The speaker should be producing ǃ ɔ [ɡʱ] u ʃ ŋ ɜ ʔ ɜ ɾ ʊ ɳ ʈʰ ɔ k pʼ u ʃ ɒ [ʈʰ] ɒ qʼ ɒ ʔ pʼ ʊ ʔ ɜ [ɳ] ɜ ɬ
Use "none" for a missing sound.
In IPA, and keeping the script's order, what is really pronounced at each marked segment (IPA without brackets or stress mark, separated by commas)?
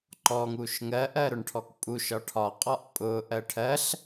ŋ, ʈʰ, ʈʰ